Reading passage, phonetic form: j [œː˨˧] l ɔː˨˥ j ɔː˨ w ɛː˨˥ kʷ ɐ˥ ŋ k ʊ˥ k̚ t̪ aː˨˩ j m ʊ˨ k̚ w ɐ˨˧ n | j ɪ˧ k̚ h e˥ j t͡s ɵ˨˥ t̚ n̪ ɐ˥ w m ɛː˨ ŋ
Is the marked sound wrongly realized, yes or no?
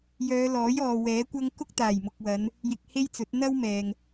no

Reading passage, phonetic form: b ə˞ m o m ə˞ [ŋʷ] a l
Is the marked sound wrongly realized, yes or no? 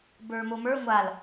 no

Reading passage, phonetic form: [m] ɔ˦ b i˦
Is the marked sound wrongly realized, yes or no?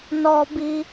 yes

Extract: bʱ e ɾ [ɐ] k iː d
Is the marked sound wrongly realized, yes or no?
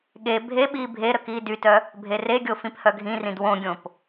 yes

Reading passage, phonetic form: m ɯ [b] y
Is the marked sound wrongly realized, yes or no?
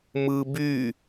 no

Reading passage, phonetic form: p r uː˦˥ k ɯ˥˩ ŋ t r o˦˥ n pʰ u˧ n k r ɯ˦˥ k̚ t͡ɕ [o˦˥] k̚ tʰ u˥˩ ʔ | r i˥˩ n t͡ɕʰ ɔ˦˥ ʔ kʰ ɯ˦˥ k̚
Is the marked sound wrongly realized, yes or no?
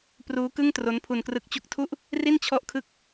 yes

